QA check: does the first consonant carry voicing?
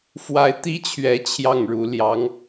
no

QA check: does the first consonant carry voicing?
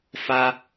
no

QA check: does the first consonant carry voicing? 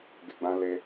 yes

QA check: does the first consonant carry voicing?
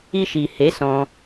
no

